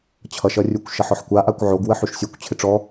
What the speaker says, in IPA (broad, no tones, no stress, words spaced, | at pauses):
t͡ɕʰʌʃʌrʲukʷ ʃʌħɔħkʷa ʔakʷʕoɡ wəħyʃsʲukʷ t͡ɕʰɪʈ͡ʂɔ